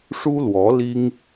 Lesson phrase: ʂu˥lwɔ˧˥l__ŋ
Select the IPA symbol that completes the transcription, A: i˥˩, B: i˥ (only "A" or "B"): B